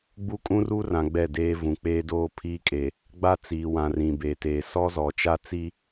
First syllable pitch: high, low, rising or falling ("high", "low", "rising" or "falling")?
high